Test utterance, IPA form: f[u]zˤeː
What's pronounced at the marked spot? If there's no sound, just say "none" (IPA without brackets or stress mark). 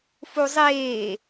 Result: u